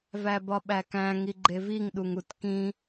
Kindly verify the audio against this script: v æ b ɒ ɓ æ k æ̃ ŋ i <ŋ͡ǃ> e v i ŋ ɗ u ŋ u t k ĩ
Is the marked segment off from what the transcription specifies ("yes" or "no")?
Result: yes